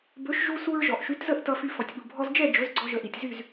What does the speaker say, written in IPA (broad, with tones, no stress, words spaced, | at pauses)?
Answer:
bɵ˩˥ʃʒu˧su˧ɹ ʒɔ˩ʔʃy˩˥tzə˥˩ʔ tʌ˧fy˧ fɔ˩tʲɓu˩ bʱɔ˧zd͡ʒɛ˥˩ d͡ʒɵ˩˥zɡ͡ǀɔ˧ʒə˩˥ʔi˩tʲ zy˥˩z